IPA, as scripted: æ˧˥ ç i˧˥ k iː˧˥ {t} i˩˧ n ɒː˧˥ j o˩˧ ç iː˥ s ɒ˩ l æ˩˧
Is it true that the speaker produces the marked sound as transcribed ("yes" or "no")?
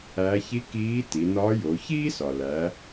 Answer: yes